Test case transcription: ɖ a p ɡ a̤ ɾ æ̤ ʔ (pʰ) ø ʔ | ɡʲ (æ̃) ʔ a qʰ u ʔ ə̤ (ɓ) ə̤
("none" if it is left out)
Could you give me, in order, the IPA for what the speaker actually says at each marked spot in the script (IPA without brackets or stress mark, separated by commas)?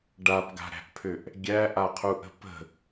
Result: pʰ, æ, p